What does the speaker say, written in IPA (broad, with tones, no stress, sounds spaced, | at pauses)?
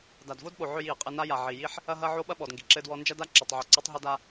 d a˨ d v o˦ d ɓ o˨ ʕ ø˦ j i˨ ə̯ qʼ ɘ˦ n a˦ j a˨ ʕ i˨ j i˦ ħ | ɐ˦ ɦ ɐ˦ ʕ o˦ ɓ ɐ˦ ɓ ɔ˨ d ŋ ɡ i˨ ǁ ɘ˦ d w ɔ˦ n d͡ʒ ɐ˦ d a˦ ǁ ɔ˨ tˤ ʕ o˨ ǀ ɘ˦ tˤ ɦ ɘ˦ d a˦